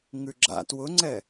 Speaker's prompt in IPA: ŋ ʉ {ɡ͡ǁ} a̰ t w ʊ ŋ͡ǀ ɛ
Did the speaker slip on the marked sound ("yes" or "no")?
no